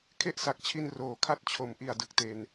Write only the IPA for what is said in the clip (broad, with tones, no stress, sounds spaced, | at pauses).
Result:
kʰ e˥˩ ʔ s a˨˩ k̚ t͡ɕʰ i˧ n r oː˩˦ kʰ a˥˩ t̚ t͡ɕʰ o˩˦ m ʔ i˨˩ a̯ d ɯ˨˩ k̚ t e˨˩ n